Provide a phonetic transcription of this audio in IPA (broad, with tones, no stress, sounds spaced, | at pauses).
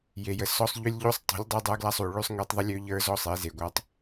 j e˨ j ə˨ s ɔ˦ sˤ ʎ ʉ˦ lʲ ʎ u˦ sˤ tˤ ṳ˨˦ lʲ dˤ ə˞˦ dˤ ə˞˦ ɡ l a˦ sˤ u˨ ɭ ʉ˦ sˤ ŋ e˦ tˤ ðˤ ə˦ lʲ ø˦ ʎ ə˞˦ z ɔ˦ sˤ e˨˦ z e˨ ɡʷ a˦ tˤ